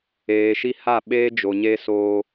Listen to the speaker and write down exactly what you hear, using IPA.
eː˨ʃi˦ ha˦˨ɓeː˦d͡ʒo˨ɲe˦ soː˦

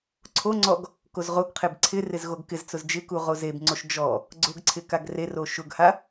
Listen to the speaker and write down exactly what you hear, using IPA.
ǀʰoŋ͡ǀɔɡ | kozʁoɡqʰeb ǀʰɪ rɪzɣoɡkɪzt͡sʊz d͡ʒɪku ʁozebŋ͡ǀoʃ d͡ʒɔ | ɡ͡ǀʊɡ ǀʰɪkaɡrero ʃʊɡha

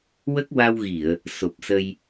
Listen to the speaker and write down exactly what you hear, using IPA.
wə˦˥k̚wa˧wɣi˨˩˨ə̯ | so˨˩p̚sə˧j

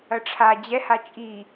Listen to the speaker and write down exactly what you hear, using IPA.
ɐʈ͡ʂʰa d͡ʑɛha t͡ʃʼi

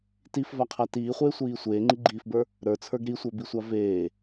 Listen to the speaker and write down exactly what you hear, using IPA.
tifvaqʰa tiːχʷeːsʷiː sʷeːŋ͡ǃiɡ͡ǃiːfbə˞ | ɾə˞t͡sʰə˞ɡ ɾisʷə˞bisʷa veː

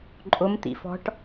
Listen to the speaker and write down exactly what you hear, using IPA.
ǃʼʊm t̪ḭfɔ̤ʈ

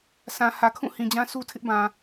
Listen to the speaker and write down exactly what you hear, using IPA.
sã˨ hä˨kʰũ˦˨ hĩ˨d͡ʑã˦ su˦tʰɪ˦ʔ bã˨

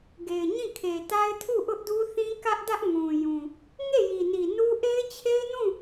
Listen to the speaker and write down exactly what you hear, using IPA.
ɡe˨ɪ̯ɲĩ˦˨kʰe˨ta˦ɪ̯ tʰu˦˨ʔʊ˦ʔdu˦θĩ˦ kä˦ʔdä˦ʔ ŋũ˨jũ˨ | ŋe˦˨ji˨ni˨ nu˦ ʔe˦ɪ̯t͡ɕʰe˦ɪ̯nũ˦˨

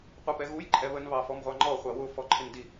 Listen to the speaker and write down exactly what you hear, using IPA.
qʷipɛɣuj ǃʼɛβən βɑfɔmʁʷɑŋ͡ǃɔ χʷɑwʊ fɔǃʰɪndi

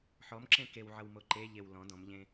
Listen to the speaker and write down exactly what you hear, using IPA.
ħɔmǁẽ kewʕʌw moǃeʎew lɔ̃ dɔ̃mʎẽ

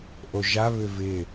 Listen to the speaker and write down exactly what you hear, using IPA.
ʔoʒa βʏvɪ

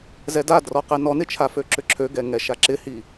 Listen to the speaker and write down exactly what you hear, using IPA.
zɛdadrɔqɛ nɔnɪt͡ʃʰafø ǁʏǁʰøɡɛ ŋɛʃaǁɪhi

